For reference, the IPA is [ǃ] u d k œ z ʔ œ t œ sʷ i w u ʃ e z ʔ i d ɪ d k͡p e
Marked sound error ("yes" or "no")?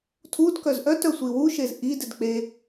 yes